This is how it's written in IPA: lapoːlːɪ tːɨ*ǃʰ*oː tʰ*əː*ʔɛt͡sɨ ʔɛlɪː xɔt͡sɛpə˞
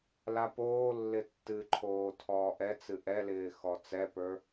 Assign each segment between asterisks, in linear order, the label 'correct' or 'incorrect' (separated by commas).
correct, incorrect